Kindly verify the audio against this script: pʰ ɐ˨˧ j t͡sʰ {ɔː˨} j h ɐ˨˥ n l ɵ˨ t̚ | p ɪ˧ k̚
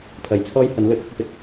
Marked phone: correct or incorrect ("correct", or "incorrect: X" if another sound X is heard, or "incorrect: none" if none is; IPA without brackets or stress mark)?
incorrect: ɔː˥